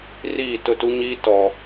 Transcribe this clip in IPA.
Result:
r iː˦˨ t ʊ˦˨ t u˦ ɲ iː˦ t ɔ˨

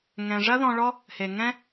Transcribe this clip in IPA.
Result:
ŋ ɛ̃˧ ʐ ɐ˦ ð ɔ̃˧ ɭ ɔ˦ | h e˧ ŋ ɛ̃˦

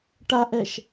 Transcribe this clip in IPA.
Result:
ʈ a ʔ ɛ ʃ

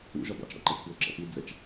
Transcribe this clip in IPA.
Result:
ṵ ʒ ɔ b ɑ̰ t͡ʃ ɽ ɔ̰ ǃ æ t͡ʃ p w ʊ ǁ ɑ̰ p i d͡z ə t͡ʃ

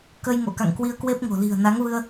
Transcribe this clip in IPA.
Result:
k ə˧ j ŋ o̰˧˨ k a̰˧˨ ŋ k w i˧ ə̯ k w e˦˥ p̚ ŋ o̤˨˩ l i̤˨˩ ə̯ n a˨˦ ŋ v ɨ˧ ə̯

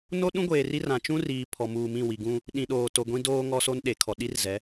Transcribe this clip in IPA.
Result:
n o˦ ɗ ũ˦ ɡʷ eː˨ r i˦ r ã˨ t͡ʃ ũ˦ r iː˨ pʰ ɔ˨ m uː˨ m ĩ˦˨ w i˨ ɡ ũ˦ | ɗ ĩ˨ ɗ oː˨ t o˨ ɡʷ ĩ˦ d oː˦ ŋ ɔ˦ s o˦ n ɗ e˨ kʰ ɔ˨ ɗ i˦ r z ɛ˨˦

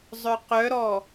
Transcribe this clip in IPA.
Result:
zˤ œ q œ ɾ ɔ

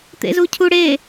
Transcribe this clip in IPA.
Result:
t̪ ḛ z u cʰ u ɽ e

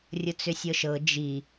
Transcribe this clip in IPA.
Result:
rʲ ʊ t͡s ʏ sʲ ɤ ʃ ɤ d͡ʒ i

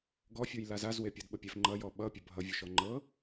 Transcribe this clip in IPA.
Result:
ɡ ɔ fʲ u j l a z a z w e pʲ ɔ d ɓ ə pʲ ɛ f ŋ͡ǃ ʌ j ɔ ɓ ʌ pʲ ə bʱ ʌ vʲ ʊ ʃ ɔ ŋ͡ǃ ɤ

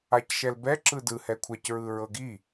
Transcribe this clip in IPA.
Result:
a c ʃ ɛ l b ɛ ǁ ɯ d ɯ h ɛ kʷʰ ɛ c ɹ ɯ ɹ ɤ ɡ i

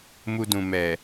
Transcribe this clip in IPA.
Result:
m u˧ d ũ˨ m ɛ˨

